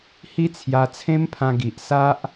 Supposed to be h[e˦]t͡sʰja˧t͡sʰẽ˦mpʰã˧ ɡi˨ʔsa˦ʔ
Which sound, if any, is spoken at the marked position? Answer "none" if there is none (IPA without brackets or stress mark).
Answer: i˦